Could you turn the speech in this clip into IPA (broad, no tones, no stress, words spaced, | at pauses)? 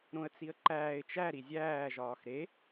ɾõə̯t͡siə̯ǃæːɪ̯ t͡ʃæ ɾizʲæː ʒɒːxɾe